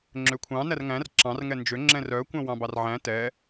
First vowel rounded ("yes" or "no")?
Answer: yes